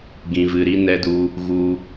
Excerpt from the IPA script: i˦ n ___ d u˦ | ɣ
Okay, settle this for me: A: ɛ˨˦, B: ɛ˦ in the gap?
B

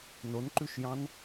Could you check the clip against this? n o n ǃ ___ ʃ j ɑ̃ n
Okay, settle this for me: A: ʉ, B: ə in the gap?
A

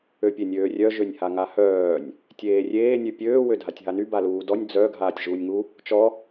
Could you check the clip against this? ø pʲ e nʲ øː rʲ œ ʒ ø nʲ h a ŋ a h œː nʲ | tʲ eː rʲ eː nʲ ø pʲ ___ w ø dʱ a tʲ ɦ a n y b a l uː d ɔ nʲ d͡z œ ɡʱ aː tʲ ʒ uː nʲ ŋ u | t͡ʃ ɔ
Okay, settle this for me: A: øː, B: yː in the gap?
A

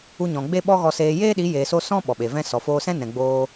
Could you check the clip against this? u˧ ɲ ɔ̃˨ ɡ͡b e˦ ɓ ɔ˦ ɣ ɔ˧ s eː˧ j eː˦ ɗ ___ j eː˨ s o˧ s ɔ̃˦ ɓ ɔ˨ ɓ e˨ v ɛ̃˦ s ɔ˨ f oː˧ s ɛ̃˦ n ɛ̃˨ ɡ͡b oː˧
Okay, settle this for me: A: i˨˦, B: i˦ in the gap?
A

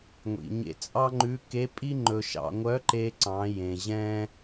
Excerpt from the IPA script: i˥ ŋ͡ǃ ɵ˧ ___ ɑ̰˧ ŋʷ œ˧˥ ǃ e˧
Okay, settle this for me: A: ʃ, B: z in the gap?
A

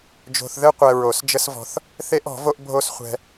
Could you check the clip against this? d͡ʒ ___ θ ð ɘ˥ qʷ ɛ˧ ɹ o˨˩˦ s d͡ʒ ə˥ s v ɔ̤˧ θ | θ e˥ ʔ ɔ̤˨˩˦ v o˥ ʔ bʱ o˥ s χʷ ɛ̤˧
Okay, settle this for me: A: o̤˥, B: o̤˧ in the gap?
B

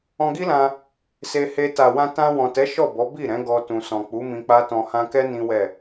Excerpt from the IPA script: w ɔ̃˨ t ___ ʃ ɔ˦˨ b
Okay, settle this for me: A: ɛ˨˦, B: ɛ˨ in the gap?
A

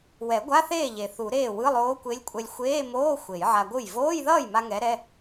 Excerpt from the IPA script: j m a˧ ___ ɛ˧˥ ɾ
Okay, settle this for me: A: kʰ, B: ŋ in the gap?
B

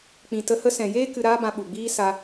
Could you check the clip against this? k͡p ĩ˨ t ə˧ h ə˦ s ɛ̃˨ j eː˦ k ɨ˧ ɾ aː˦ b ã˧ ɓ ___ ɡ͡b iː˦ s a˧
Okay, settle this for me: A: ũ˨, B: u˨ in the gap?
B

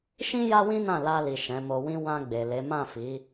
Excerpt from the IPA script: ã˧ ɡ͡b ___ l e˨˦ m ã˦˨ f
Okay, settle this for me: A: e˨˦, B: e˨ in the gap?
B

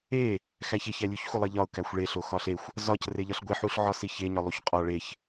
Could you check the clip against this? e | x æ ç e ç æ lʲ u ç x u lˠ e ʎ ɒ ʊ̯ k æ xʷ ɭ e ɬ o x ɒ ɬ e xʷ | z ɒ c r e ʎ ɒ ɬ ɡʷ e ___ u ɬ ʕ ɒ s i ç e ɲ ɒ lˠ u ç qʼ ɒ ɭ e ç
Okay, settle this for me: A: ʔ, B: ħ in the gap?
B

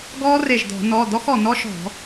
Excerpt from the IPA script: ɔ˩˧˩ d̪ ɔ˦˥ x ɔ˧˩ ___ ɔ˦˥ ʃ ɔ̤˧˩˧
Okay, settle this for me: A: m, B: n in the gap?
B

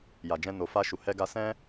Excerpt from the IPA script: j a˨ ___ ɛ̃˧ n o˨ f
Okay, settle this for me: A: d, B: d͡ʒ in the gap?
B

